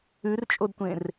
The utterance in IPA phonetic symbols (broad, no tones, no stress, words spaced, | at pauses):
ʉrt͡ʃʼodtʷẽr